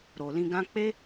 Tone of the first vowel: low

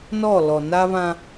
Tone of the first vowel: falling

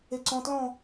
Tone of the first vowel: low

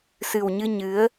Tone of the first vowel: low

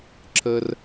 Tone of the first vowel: high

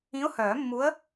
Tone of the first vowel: rising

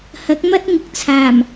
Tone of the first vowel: rising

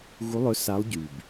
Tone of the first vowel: rising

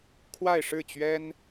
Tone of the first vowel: falling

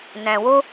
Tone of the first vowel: low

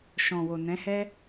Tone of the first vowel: low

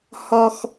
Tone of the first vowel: high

